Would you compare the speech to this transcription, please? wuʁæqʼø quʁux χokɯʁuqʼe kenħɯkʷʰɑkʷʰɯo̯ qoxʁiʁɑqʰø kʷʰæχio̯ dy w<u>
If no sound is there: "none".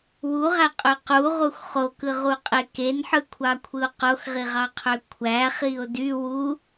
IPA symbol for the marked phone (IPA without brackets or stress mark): u